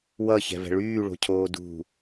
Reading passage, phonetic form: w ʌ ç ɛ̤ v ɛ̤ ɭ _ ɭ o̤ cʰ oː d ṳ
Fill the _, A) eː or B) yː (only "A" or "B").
B